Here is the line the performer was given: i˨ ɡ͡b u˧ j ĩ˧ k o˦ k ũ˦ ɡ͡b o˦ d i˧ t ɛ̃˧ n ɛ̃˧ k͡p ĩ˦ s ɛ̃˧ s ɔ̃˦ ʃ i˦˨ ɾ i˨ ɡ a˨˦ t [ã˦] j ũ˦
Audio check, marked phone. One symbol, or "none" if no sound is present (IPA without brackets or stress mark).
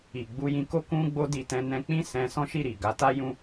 a˦